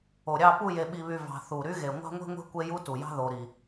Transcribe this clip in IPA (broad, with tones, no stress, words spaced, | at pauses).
o˨ ɾʲɑ˦˨pu˦˨ je˨ɓi˨βy˨ vɑ̤˨ θu˨ ɾy˦ɣe˨ ŋʷɑ̤˦ŋʷe̤˦ŋʷe̤˦ kʷe˦ju˦tu˨jɑ̤˦ ðo˨ɾi˨